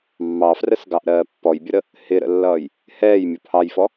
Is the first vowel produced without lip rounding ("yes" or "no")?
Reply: yes